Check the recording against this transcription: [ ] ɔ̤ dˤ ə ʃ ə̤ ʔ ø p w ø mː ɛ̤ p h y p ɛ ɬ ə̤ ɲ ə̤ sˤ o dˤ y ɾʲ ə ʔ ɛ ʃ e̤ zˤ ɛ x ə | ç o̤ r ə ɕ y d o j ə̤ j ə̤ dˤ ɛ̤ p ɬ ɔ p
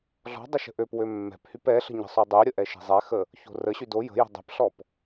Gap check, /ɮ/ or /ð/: ɮ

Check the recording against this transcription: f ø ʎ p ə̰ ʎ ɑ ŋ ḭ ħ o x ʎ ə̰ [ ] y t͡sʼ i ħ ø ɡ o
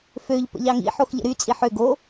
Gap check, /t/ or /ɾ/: ɾ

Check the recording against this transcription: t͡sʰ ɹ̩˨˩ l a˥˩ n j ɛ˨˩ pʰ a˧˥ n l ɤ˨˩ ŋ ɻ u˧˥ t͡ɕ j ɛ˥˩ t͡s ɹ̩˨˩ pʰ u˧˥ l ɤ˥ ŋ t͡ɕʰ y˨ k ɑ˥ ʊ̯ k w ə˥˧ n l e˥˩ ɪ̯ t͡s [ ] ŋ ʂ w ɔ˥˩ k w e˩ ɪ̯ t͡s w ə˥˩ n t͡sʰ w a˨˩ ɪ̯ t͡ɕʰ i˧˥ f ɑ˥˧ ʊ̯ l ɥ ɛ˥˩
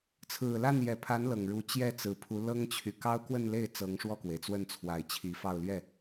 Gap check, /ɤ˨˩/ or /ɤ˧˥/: ɤ˧˥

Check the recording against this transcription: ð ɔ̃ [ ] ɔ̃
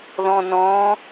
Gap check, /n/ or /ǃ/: n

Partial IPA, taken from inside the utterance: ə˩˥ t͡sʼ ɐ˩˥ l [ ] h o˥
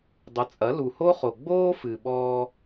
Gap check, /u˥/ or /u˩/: u˩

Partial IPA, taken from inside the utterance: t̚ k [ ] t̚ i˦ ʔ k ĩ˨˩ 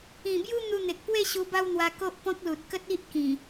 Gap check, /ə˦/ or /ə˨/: ə˦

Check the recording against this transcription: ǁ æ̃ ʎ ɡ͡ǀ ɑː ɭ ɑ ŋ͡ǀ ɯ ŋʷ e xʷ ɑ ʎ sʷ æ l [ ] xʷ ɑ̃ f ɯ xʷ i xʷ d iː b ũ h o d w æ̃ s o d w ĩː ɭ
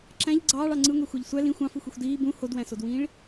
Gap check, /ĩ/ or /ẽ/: ĩ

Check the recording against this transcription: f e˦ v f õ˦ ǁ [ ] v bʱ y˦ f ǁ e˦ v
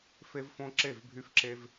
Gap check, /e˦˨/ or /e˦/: e˦˨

